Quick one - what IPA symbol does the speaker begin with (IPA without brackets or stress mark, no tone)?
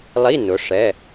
lˠ